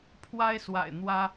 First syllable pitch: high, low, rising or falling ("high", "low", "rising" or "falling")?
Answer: high